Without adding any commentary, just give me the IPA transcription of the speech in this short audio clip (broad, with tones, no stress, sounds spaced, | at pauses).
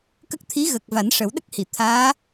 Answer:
k ə˦˥ k̚ t̪ʰ i˧˥ ɣ ə˨˩ k̚ v a˨˩˦ n ʂ ə˨˩˦ w ɗ ə˦˥ k̚ h i˨˩˨ t̪ʰ aː˧˥